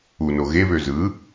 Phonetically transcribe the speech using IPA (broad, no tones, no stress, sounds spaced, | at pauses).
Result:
u n o ɣ e β ø z ɯ